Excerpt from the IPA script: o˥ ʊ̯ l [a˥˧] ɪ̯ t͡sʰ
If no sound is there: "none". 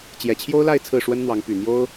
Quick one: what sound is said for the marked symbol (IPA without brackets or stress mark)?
a˥˧